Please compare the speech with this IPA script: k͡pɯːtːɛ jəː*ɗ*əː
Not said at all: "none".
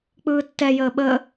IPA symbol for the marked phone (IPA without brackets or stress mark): ɓ